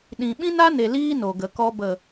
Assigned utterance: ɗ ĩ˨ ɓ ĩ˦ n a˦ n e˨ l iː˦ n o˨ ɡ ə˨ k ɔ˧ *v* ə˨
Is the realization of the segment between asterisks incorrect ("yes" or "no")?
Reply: yes